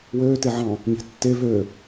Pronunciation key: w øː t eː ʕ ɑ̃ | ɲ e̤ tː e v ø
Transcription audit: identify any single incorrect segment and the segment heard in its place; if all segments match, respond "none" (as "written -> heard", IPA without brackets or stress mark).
eː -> e